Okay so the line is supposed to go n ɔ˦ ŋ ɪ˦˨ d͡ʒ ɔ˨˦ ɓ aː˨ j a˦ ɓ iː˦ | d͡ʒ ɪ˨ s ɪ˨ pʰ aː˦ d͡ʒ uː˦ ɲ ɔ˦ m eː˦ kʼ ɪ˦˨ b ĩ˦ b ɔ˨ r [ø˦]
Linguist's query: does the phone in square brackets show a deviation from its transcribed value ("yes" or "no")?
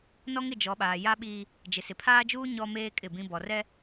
yes